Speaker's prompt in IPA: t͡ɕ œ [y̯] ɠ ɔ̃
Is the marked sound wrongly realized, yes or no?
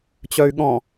no